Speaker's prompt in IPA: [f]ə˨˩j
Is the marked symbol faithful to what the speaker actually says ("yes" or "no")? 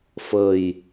yes